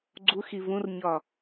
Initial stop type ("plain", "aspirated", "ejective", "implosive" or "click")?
click